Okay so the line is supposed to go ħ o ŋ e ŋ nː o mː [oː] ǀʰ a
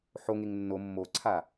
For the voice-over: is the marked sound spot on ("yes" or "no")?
no